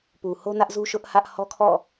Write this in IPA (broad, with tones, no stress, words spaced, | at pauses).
pu˨ho˦nä˦ʔ zu˦ʃʊ˦ʔhä˦ʔ hɔ˦kʰɔ̰˦˨